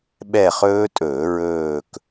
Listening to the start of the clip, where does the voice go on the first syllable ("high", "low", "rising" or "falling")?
falling